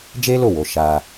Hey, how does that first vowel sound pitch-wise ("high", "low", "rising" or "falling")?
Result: high